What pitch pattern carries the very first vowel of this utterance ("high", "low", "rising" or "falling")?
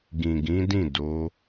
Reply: low